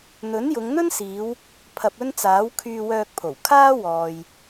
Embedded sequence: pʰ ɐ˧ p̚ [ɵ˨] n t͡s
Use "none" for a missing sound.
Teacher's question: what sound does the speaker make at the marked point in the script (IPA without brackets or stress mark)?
ɵ˥